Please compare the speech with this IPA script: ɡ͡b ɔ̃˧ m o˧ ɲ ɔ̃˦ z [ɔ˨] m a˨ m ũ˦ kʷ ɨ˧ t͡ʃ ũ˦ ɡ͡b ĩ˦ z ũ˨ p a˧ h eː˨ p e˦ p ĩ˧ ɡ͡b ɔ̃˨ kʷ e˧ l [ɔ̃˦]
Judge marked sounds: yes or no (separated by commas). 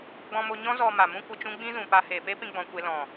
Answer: no, no